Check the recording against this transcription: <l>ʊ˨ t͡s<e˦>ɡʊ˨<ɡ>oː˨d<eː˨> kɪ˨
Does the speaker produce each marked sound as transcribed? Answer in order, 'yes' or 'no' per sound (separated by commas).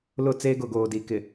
yes, no, yes, no